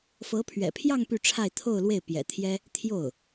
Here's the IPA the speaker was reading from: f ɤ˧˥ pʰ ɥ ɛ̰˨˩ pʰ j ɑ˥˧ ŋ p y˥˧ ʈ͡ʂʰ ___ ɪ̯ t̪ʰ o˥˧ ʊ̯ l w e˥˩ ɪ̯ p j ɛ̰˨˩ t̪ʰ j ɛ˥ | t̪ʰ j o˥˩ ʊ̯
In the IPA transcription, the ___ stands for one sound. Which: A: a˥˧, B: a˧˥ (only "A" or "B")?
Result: A